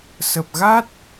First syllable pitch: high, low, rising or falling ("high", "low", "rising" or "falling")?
low